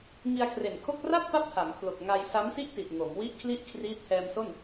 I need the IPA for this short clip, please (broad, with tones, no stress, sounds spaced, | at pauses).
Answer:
ŋ i˧ a̯ kʰ r e˨˩ n kʰ o˥˩ k̚ r a˥˩ t̚ p a˦˥ p̚ h a˩˦ m kʰ l o˨˩ k̚ ŋ a˧ j s a˦˥ m s i˥˩ ʔ t i˨˩ t̚ ŋ o˩˦ m w i˥˩ ʔ kʰ l i˥˩ ʔ kʰ r iː˦˥ t̚ h ɛː˧ m s o˥˩ n